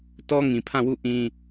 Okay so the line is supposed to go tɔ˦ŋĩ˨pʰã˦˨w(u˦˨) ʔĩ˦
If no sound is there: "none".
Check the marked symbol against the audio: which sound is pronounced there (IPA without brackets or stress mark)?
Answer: u˦˨